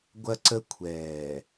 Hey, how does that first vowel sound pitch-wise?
high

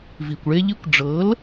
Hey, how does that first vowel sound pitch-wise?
low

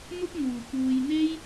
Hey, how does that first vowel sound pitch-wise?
high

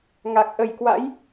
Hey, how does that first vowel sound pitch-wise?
low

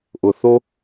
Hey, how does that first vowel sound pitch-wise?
low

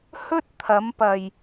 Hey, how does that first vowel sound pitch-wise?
high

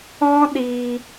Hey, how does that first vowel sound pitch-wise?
high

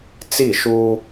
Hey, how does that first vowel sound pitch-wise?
falling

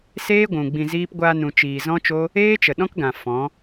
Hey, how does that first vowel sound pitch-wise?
high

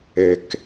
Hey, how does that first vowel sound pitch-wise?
low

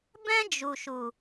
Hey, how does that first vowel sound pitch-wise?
high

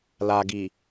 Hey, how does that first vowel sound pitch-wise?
low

